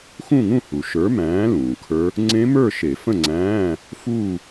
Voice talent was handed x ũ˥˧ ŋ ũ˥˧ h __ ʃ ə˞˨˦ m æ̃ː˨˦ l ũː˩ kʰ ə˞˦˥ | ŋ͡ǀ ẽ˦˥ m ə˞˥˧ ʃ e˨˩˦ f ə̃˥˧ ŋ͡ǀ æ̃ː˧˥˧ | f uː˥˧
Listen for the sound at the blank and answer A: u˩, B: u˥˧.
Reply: A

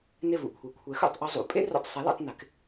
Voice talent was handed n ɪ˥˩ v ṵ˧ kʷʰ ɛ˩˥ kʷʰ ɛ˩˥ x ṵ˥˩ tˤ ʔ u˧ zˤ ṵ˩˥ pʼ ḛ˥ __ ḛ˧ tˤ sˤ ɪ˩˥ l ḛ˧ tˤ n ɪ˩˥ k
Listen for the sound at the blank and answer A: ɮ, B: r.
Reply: B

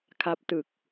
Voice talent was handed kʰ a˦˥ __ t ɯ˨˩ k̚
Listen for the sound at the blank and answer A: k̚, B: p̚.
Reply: B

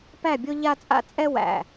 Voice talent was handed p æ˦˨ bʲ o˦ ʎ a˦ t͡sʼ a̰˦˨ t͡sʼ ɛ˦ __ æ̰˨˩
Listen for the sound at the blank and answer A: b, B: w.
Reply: B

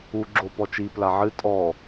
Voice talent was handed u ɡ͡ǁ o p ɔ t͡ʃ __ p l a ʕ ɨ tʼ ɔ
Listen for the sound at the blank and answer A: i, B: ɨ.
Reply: A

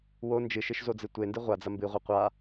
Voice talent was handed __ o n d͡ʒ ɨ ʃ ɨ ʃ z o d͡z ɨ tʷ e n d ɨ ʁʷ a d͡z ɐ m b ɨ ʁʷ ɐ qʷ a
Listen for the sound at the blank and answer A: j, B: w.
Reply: B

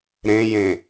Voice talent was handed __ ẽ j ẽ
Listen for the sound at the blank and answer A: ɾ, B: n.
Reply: A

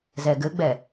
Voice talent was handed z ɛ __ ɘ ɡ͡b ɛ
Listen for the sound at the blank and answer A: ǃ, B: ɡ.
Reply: B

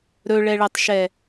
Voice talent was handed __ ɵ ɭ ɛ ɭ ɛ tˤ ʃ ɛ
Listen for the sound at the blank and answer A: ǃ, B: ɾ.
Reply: B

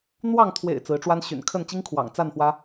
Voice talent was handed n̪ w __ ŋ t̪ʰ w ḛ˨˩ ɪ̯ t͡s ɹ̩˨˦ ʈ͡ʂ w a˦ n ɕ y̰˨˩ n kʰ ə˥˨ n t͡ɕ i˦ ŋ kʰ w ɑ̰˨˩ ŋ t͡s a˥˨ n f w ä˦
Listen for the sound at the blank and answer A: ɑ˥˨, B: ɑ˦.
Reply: A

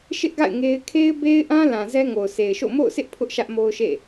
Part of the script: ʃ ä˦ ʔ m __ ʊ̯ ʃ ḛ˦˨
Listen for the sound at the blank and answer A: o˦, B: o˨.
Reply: A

